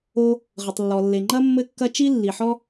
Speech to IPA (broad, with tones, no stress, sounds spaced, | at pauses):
o˥ | ʁ ɘ˩ tˤ lː ɔ˩ lː e˩ ŋ͡ǃ ɐ˥ mː ɘ˥ kː ɐ˥ t͡ʃ i˥ lː i˩ ħ ɔ˥